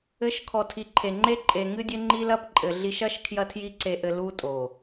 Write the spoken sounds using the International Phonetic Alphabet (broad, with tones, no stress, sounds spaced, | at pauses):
ɘ˧ ʃ kʰ ɔ˨ tʰ i˨ ǃʰ e˨ ŋ͡ǃ e˦ ǃʼ e˨ ŋ ɨ˦ dʲ ɘ˦ ŋ͡ǃ i˦ l ɐ˦ p ǃʼ ɘ˨ ɮ i˧ ʃ ɐ˦ ʃ kʰ j ɐ˦ tʰ j i˦ ǀ e˧ ʔ ɘ˧ l u˦ tʼ o˨